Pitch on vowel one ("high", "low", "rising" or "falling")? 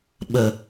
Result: low